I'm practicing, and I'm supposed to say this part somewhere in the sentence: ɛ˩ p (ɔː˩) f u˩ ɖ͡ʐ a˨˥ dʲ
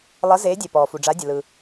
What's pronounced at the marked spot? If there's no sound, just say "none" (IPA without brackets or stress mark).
ɔː˩